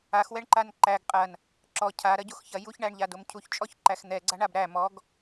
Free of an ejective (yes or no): no